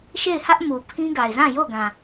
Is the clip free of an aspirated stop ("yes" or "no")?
no